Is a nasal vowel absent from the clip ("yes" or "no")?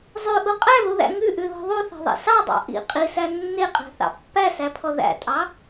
yes